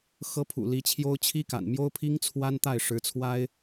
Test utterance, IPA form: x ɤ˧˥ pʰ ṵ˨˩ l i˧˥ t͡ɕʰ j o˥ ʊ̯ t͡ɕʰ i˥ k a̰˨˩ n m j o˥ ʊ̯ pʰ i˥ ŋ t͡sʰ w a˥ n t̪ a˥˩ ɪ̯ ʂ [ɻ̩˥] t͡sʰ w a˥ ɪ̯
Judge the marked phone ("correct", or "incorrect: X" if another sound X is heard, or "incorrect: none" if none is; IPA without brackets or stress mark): incorrect: ɻ̩˧˥